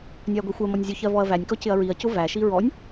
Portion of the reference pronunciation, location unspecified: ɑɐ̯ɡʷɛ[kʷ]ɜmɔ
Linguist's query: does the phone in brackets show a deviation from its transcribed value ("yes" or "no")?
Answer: yes